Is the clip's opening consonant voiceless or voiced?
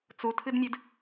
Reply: voiceless